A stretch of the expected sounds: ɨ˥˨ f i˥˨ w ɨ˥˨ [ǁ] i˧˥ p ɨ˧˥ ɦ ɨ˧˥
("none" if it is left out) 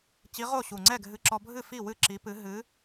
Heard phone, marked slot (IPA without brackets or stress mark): ǁ